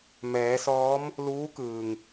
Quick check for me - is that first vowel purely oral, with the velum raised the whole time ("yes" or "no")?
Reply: yes